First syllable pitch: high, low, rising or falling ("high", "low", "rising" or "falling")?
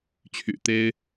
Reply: low